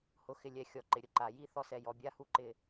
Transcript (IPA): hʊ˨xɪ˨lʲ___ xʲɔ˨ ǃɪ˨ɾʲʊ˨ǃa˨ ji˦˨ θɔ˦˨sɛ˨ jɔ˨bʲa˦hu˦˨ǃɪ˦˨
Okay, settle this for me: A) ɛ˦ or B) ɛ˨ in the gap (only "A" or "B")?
B